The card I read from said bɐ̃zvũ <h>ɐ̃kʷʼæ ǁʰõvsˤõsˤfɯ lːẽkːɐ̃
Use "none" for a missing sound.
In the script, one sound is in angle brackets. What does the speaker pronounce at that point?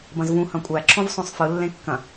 h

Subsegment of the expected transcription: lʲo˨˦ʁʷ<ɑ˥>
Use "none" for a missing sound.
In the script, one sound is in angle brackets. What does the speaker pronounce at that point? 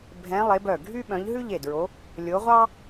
ɑ˥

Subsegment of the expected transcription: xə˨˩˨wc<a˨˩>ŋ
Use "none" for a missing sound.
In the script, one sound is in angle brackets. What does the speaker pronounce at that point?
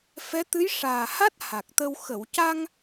a˧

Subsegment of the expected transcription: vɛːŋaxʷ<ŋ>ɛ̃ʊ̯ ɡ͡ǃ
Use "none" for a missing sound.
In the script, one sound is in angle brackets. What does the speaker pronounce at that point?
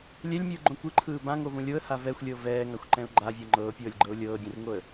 ǃ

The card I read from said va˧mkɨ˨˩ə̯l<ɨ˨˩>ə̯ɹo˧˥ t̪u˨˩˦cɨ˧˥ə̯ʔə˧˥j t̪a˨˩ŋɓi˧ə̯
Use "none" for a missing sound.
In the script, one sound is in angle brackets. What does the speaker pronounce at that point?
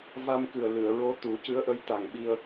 ɨ˨˩˨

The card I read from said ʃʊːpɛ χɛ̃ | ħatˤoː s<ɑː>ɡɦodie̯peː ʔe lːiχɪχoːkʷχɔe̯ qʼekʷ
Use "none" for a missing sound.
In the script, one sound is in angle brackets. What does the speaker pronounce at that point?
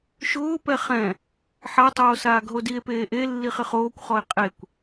aː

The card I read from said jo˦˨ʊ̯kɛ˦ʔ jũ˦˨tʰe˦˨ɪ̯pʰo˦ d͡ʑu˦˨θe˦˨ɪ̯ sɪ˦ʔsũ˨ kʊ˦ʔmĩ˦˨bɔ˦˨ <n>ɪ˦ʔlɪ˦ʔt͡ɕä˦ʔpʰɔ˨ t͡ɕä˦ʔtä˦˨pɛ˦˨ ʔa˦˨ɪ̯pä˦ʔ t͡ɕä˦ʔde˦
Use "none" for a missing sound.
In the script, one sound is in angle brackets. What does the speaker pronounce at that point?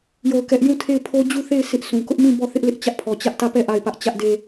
θ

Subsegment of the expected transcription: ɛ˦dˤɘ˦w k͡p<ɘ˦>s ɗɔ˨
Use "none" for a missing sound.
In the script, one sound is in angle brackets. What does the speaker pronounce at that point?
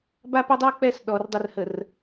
ɛ˦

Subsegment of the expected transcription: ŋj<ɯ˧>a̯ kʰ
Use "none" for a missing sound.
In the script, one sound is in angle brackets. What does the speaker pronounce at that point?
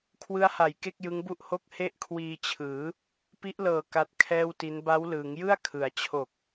ɯ˥˩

